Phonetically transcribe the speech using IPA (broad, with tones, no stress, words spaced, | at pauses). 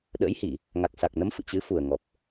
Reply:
ɗə̰ː˧˥jhi˧˩˨ | ŋa˨˩k̚sa˨˩k̚nə˨˦m fɨ̰˧˨t͡ɕɨ˨˦fu˨˩ə̯ŋɔ˨˩p̚